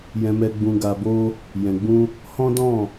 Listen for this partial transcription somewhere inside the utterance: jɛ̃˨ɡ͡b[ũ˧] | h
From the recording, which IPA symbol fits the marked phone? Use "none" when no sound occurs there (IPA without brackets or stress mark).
ũ˧